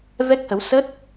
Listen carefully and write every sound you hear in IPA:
vɛ˦˥k̚hə˨˦w sə˦˥t̚

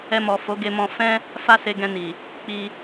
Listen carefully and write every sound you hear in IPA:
ɛ˧mɔ˨ fo˨˦ ɡe˧mɔ̃˧ fɛ̃˦ | fa˦se˧ ɡɛ̃˧ni˨ | k͡pi˧

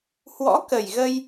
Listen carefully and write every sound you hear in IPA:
hwɔ̰˧˥kə˨˩jɣə˧j

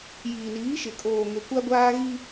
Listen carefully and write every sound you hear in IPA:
jiː˨niː˨˦ʃɪ˨ kʼoː˨ŋe˨kʷa˦ɡʷaː˦ ɣi˦

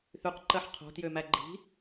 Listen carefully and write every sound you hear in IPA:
θyqǃɜħ qʰo̤tjømæ ɡ͡ǃi̤

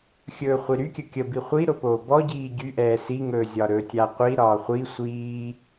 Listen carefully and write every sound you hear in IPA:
xʲɵːχʷiɾykʲə kʲə biχʷi ɾopoːbɔɟiː ɟyʔɛː siŋɵːzʲɒɾɵː tʲaqʷi ɾɒːχʷi sʷiː

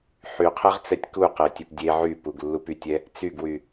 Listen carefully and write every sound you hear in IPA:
ħyqʰɛʁt͡sɛtʲ kuqɛtʲep dʲe ʕypuɡlːup ytʲɛ | t͡syɡwy

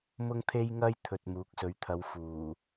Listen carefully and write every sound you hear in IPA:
mʊ˥ŋt̪ʰe˥jŋɐ˥jt̪ʰɵ˨t̚ muː˨˥k̚sɵ˨˧ɥt̪ʰɐ˨˧w fuː˨˩

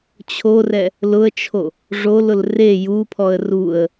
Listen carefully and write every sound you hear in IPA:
t͡ɕʰorɛ | lʊə̯t͡ʃʰo | ʐolʊl re jupʰɔə̯ ruə̯

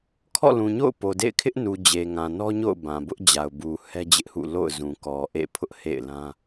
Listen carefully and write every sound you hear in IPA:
kʰɔ̰˦˨lũ˨ɲo̰˦˨ʊ̯ po˨dḛ˦˨ɪ̯kʰɪ˦ʔnu˨ d͡ʑe˨ŋã˨nɔ˦ɲo̰˦˨ʊ̯ bã˨bʊ˦ʔd͡ʑa˨ʊ̯bu˨ hɛ˦d͡ʑɪ˦ʔhṵ˦˨ lo̰˦˨ʊ̯zũ˨kɔ˨ ʔḛ˦˨pʰʊ˦ʔhḛ˦˨ɪ̯lã˦

